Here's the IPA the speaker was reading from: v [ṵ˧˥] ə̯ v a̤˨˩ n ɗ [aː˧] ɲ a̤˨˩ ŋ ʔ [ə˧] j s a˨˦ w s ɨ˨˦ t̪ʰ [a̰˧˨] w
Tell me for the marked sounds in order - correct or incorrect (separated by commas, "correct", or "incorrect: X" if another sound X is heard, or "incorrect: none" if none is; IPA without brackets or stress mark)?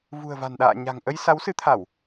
incorrect: ṳ˨˩, incorrect: a̰ː˧˨, correct, incorrect: a˧˩˨